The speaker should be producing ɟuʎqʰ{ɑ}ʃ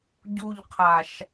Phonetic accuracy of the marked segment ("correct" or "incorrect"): incorrect